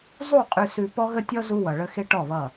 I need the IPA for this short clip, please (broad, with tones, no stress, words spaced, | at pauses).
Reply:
zˤu˦˨ qʼʉ˨sʉ˨ pɔ˦ɣə˦tʲɔ˦ zu˦wʌ˨ɭə˦ xe˦ʈɔ˦˨βʌ˦˨